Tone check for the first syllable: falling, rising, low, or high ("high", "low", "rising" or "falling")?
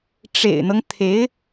low